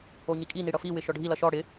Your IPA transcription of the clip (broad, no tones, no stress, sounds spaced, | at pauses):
o ɲ i kʼ i n i ɽ ʌ f i w ɪ ʃ ɔ ɖʱ i l ʌ ʃ ɔ ɽ ɪ